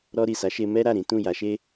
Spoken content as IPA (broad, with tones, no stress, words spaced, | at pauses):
ɾɔ˧ɾi˨sa˨˦ʃe˧ mɛ˦ɾa˦˨ɾĩ˨˦ tũ˦˨ ja˨˦ʃe˦